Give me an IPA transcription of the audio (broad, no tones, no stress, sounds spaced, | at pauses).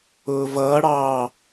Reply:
ʊː v ʌː ɽ ɑː